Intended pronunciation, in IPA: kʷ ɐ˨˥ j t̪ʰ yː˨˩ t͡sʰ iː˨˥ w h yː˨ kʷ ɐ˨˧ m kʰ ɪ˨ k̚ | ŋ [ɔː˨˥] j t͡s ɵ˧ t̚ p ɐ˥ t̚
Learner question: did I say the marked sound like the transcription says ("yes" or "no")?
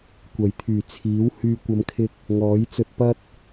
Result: yes